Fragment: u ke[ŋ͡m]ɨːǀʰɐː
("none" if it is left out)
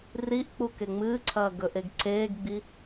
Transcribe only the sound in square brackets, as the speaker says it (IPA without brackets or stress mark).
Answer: ŋ͡m